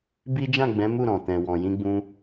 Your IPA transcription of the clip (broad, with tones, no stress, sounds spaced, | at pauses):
b i˦ d͡ʒ ã˦˨ ɡ͡b ɛ̃˨˦ m u˦˨ ɾ ɔ̃˨ t ɛ̃˨ w ɔ̃˨ j ĩ˧ ɡ͡b ũ˧